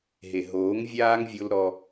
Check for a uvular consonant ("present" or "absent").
absent